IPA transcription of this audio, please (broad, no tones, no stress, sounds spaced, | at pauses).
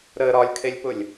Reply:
ɾ ə ɾ ɒ lʲ kʰ e lʲ p ʊ lʲ